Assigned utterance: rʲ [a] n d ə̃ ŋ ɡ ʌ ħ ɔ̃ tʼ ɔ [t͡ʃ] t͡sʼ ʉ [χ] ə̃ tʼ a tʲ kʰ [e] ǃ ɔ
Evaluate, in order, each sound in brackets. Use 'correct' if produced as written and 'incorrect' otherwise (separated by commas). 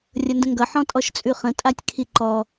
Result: incorrect, incorrect, correct, incorrect